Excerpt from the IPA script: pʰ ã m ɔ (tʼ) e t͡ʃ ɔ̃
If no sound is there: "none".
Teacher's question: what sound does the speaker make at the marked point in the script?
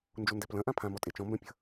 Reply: tʼ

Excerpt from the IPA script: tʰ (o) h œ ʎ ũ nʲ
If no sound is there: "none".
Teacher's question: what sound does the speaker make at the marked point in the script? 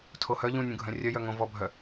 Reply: o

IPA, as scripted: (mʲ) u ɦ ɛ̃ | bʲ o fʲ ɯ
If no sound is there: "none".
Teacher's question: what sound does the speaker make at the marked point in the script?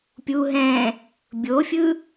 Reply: pʲ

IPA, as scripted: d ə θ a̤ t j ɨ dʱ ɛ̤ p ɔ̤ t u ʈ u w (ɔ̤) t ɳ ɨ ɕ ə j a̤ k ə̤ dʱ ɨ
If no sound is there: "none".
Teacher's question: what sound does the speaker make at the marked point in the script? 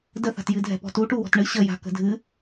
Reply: ɔ̤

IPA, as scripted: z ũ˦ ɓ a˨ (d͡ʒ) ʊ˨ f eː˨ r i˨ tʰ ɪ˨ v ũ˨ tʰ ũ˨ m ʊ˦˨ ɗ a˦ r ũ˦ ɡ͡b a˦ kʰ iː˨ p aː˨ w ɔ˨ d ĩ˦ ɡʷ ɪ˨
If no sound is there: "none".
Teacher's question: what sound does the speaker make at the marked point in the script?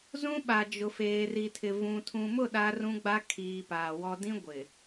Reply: d͡ʒ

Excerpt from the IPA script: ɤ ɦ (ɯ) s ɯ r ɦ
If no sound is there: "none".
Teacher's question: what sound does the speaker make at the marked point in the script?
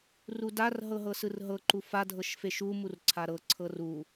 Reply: ɤ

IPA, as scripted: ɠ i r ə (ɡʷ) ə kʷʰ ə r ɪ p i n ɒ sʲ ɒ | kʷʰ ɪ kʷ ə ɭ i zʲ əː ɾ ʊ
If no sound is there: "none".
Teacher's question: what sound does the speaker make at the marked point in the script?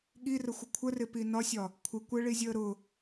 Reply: xʷ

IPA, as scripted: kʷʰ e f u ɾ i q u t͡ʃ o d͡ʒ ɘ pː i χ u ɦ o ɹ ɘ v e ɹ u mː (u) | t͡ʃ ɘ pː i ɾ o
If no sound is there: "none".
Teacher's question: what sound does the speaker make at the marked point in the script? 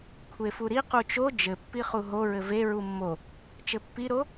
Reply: o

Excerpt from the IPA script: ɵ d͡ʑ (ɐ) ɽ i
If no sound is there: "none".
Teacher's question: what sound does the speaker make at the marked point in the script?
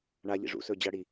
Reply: ɐ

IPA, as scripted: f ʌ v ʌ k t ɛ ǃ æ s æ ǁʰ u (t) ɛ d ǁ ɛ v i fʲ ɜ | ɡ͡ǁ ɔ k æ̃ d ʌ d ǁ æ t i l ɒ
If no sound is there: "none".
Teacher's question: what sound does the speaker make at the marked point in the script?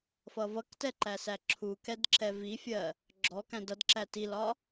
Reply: k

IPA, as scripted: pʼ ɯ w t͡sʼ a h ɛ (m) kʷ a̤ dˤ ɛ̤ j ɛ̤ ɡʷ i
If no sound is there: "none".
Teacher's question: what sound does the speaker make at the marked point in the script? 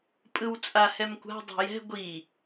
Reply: m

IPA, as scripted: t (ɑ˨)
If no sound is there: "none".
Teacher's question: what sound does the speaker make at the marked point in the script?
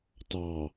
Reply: ɑ˨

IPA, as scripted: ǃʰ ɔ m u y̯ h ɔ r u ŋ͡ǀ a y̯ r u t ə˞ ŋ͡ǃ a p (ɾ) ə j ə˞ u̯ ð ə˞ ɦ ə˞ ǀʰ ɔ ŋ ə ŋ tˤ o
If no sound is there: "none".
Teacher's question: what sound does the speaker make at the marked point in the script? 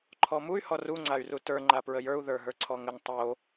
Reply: ɹ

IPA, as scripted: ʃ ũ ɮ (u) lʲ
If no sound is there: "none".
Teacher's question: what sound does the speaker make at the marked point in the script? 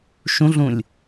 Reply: ũ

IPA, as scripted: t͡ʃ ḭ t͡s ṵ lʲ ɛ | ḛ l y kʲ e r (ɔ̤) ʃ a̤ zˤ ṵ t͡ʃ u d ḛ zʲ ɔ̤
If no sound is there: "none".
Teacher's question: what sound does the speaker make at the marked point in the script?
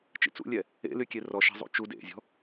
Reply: ɔ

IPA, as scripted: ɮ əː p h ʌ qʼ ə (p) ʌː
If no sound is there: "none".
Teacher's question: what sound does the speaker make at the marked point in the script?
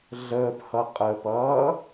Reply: p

